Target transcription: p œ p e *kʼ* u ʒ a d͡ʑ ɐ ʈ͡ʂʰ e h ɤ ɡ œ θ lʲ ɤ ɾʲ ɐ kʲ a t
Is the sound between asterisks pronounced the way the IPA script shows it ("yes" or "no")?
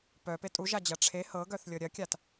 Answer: no